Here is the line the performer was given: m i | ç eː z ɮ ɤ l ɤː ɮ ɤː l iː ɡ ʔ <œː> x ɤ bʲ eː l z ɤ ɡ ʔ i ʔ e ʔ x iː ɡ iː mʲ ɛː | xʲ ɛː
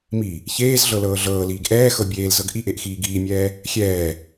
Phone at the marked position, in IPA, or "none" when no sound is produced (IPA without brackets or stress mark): ɛː